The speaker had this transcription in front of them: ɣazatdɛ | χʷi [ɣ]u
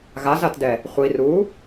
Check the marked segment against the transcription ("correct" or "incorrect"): incorrect